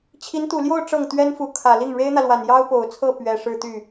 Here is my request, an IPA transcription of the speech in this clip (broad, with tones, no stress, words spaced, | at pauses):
t͡ɕʰi˧˥nt̪u˨˩ljo˥˧ʊ̯ ʈ͡ʂɤ˥˩ŋt̪ɥɛ˥nfu˧˥ kʰä˨˩li˥˩ŋ ɻe˥ɪ̯n̪ä˨lwa˨˩n jɑ˥ʊ̯po˨˩ʊ̯t͡sʰɤ˥˩ pɥɛ˨˩ ʂɻ̩˥˧t̪y˥˩